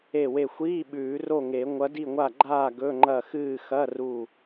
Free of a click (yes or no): no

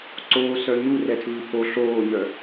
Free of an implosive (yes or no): yes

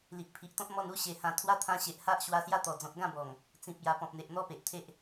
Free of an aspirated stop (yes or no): no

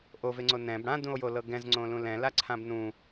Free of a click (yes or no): no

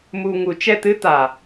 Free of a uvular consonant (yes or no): yes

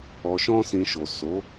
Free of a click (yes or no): yes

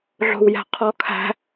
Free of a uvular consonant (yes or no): no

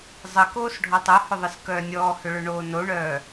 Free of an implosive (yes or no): yes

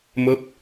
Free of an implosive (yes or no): yes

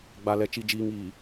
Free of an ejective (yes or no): yes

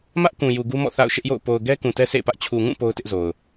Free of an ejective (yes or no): yes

